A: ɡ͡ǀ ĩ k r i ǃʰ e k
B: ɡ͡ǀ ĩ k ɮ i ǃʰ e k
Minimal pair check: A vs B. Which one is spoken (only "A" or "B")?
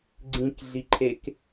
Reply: B